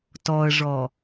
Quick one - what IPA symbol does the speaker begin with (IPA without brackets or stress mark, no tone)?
t